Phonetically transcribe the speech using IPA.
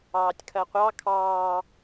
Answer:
ɑː tʲ kʰ ɜ qʷ ɑ kʰ ɑː

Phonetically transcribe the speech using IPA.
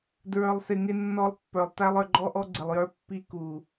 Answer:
d ɹ ə˞˨ lˠ s ɪ˨ ŋ ɪ˦ nː ɔ˦ lˠ pː ə˞˨ lˠ t æ˦ lˠ ə˞˨ ɡ͡ǃ ɔ˦ ʔ ɔ˦ ɡ͡ǀ ɪ˨ lˠ j ə˞˦ pː i˦ k u˨

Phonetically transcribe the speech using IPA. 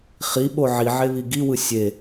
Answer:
χ i ɓ o ʕ i ʕ e β i ɡ i w ɯ sʲ e

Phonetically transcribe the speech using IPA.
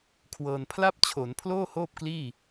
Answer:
kʰ w ɤː˧ n pʰ l a˥˩ p̚ t͡ɕʰ o˩˦ n pʰ l oː˥˩ h oː˥˩ p̚ k l iː˥˩

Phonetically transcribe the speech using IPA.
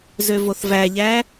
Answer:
z ø v o θ v æ ʎ æ

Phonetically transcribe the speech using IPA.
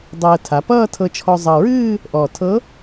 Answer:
dˤ əː˧ tʰ a˩˧ p ʌː˥˧ tʰ ɤ˧ t͡ʃʰ ɔ˧ zˤ ʌ˨˩ ɹ ɨː˥˧ | ʔ ɔ˨˩ tʰ ɤ˧˥

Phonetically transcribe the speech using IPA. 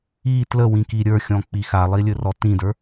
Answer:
i t l ə w ĩ k i ɾʲ ə˞ xʲ ɔ̃ k͡p i x a lˠ i lʲ ɵ r ɔ t ĩ d ə˞

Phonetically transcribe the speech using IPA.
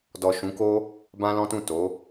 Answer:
d ɔ˨ ʃ ũ˨˦ k o˦ | b ã˦ l ɔ̃˦ t ũ˦˨ t o˨˦

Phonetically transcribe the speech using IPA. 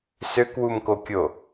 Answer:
s ø k w u m k o kʲ o

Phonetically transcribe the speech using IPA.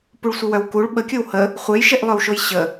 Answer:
p u ɭ sʷ ə w œ w k u ɭ ɓ ə kʲ o w h ə | χʷ e j ʃ e ʔ lˠ œ w ʃ o j ɕ ə

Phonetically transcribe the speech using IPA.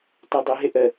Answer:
t ɔ dˤ ə ɦ ɪ ʔ ə

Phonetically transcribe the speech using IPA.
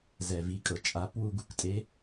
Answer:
z ɛ˩ v i˩˧ kʼ ɤ˩ t͡ʃʼ a˩˧ p w u˧ ɡ u˩ k tʼ e˧˥

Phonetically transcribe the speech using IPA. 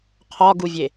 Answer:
qʰ ɒ ɡ u vʲ e

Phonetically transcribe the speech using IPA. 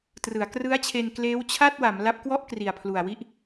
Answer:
t r ɯ˩˦ a̯ k r ɯ˦˥ a̯ t͡ɕʰ e˧ n k l eː˦˥ w t͡ɕʰ a˥˩ t̚ w a˩˦ m l a˦˥ p̚ k w ɔ˥˩ ʔ k r i˨˩ a̯ pʰ l u˨˩ a̯ w i˥˩ ʔ

